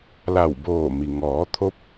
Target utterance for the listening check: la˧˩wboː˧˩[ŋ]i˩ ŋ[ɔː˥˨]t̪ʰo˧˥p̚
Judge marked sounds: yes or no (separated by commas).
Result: no, no